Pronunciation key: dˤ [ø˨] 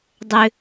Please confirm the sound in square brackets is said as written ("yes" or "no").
yes